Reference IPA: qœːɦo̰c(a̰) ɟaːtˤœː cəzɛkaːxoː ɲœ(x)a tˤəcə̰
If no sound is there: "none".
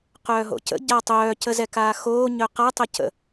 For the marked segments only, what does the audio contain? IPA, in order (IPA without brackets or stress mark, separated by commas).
ə̰, q